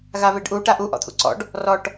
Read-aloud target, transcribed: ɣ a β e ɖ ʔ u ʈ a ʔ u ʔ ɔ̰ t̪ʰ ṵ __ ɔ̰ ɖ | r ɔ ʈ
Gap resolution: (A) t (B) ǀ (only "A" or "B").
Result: B